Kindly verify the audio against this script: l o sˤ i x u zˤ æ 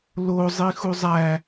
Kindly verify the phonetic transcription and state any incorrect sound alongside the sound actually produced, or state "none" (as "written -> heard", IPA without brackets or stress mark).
sˤ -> zˤ